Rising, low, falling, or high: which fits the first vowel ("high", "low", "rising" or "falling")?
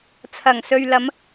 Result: low